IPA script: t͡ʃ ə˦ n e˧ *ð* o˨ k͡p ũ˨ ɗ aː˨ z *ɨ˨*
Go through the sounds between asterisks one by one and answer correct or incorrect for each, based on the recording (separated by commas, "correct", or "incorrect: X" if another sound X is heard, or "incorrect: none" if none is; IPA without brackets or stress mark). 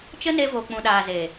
incorrect: v, incorrect: e˨